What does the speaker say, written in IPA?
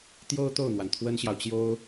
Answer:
t̪ j o˥ ʊ̯ t̪ o˥˩ ʊ̯ n̪ w a˩ n t̪ʰ w ə˥ n ɕ j ɑ˨ ʊ̯ t͡ɕ j o˥ ʊ̯

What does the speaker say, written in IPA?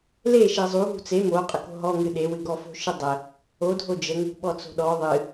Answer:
l e ʃ e zˤ u ɦ ṳ t͡s e m o qʼ ə k o̤ ɦ ɔ ŋ ɨ ɗ e w ɨ ɡ ɔ f o̤ ʃ ɨ dˤ ə | o dʱ o d͡ʒ ə ŋ ṳ ɓ ɔ t͡s o̤ ɗ ɔ ðˤ ɨ

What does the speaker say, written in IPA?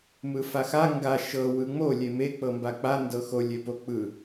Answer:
m ɯ f a x a ŋ ɡ a ʃ ɤ w ɯ ŋ͡m o lʲ e m e k͡p ɤ m b a k͡p a n d ɤ x o lʲ e p o k͡p ɯ

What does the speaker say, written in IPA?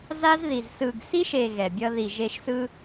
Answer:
z a˦ z ð i˨ z s ɯ˨ ɡ s i˦ ʃ e˨ ɣ ɛ˨ bʲ ʌ˦ ð i˨ ʒ e˦ ʃ s ɯ˦

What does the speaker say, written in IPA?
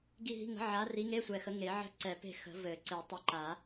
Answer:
ɡ i˦˨ ɦ i̤˧˥˧ ŋ ə̤˨˥ ʕ a˨˥ r i˨˥ ŋ e˧˥˧ sʷ ɛ˨˩ x ə˨˥ ŋ e˨˩˦ ʕ ə̤˦˨ ǀ ɛ˨˩˦ p e̤˦˨ x ə̤˨˩˦ v ɘ˨˩˦ ǀ e˨˩˦ tˤ ɛ˨˥ ǃ a˨˩˦

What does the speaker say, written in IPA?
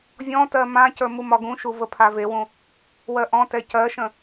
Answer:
vʲ ɔ̃ t ɜ m ã c ə˞ m u m ɒ ɡ ũ ʃ u v ə pʰ a v e w ũ | w ɜ ʔ ɔ̃ t ɛ c ɜ ʃ ə̃

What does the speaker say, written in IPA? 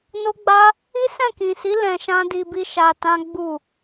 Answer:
n o˦ ɡ͡b a˦ | i˦ s ɛ̃˦˨ k ĩ˨ s i˨˦ l ɛ̃˧ ʃ ã˦ d i˧ b i˦ ʃ a˧ t ã˦ ɡ͡b u˦˨

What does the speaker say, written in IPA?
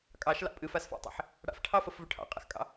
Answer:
kʼ ɑ ʃ l ɑ̰ pʼ ɨ f a s f ɑ̰ tˤ ḭ ħ | ɽ a̰ f ʈʰ ɑ f ə f v ɵ ʈʰ ɑ̰ qʼ a̰ x kʼ ɑ̰

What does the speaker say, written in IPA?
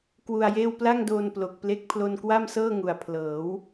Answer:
k w u˧ a̯ j eː˥˩ w p l a˥˩ ŋ d oː˧ n p l o˨˩ k̚ p l e˦˥ k̚ pʰ l o˧ n k w a˥˩ m s ɤː˥˩ ŋ u˨˩ a̯ pʰ l ɤː˩˦ w

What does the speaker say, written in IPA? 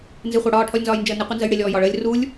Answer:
n z ɪ χʷ ɑ ɽ ɒː ʈʰ ɔ lʲ n z ɒː j n d͡ʒ əː n ɪ qʷ i n z ə j ɽ ɪ lʲ ɔː j ɒ ɭ əː lʲ r u lʲ

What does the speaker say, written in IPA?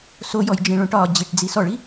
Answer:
s o j ɔ j d͡ʒ ĩ ɭ õ ʈ ɒ d͡ʑ i ʈ d͡z i s ɔ ɭ i

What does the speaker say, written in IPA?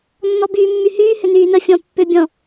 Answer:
nː ɔ b yː mː y h yː h ʏ n yː n ə fʲ ɔ̃ pː ʏ bʲ ɔ̃

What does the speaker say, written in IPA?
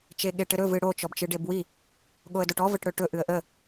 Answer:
t͡ʃ e ɠ e ʈ ɘ ɾ ɵ v ɨ ɽ o t͡ʃ ɔ b t͡ʃ ɨ ɖ e b w i | ɠ o ə̯ d o ʈ ɔ v ə ʈ ɽ ɵ ʈ ɵ ʔ ɨ ə̯ ʔ ə

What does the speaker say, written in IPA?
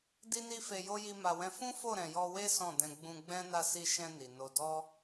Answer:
d i˦ n i˦ f e˧ j o˦ j i˦ m a˧ w ɛ̃˦ f ũ˦ f o˦˨ ɾ ɛ̃˨ j ɔ˧ w e˦ s ɔ̃˦˨ d ɛ̃˧ ɡ͡b ũ˧ ɡ͡b ɛ̃˦ n a˦˨ s i˧ ʃ ɛ̃˧ n i˨ n o˧ d ɔ˦

